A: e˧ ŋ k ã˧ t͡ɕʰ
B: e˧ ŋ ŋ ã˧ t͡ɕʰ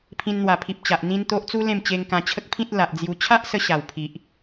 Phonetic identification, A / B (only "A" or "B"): A